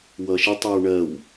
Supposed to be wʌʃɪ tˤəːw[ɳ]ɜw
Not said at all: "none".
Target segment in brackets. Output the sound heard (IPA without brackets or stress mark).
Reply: ɳ